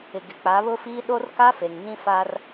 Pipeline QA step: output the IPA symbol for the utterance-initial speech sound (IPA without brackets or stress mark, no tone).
ɪ